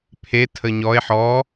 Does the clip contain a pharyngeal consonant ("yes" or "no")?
yes